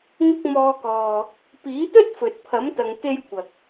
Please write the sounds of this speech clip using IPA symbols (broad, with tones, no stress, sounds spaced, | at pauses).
ŋ ʊ˧ k̚ m ɔː˨˧ k ɔː˨ | p iː˨˥ t̪ ɵ˥ t̚ f ɵ˨ t̚ pʰ ɐ˨˥ m t̪ ɐ˨˧ ŋ t̪ e˧ j kʷ ɐ˨ k̚